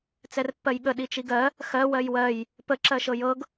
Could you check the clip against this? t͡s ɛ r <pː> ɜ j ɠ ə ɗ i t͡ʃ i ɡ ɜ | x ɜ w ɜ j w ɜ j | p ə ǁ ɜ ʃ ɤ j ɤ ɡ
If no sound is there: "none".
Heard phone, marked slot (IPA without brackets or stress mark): pː